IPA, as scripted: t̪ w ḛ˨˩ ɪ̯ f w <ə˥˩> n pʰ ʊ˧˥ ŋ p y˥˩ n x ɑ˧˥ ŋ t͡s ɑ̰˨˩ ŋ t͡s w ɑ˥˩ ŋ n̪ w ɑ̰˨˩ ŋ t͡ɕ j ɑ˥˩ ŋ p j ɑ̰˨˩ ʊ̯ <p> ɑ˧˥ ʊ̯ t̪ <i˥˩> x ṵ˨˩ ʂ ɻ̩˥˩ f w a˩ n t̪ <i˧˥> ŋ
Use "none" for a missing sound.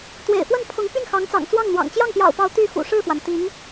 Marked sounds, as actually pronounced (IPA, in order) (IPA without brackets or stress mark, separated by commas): ə˥˩, p, y˥˩, i˧˥